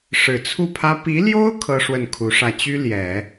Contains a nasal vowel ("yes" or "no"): no